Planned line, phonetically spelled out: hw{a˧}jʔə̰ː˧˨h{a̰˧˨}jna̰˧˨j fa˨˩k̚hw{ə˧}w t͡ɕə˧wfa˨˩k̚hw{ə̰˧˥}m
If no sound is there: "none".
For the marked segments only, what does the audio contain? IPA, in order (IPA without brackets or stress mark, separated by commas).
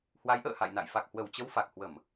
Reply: a˨˦, a̰˧˨, ə˧˩, ə˧˩˨